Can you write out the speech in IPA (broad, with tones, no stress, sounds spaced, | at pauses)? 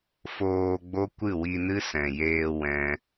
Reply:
f oː˧ ɡ͡b o˦ kʷ ɨ˦˨ w i˧ n ɨ˦ s ɛ̃˨ j eː˧ w ɛ̃˦